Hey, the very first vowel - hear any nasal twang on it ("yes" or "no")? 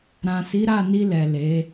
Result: yes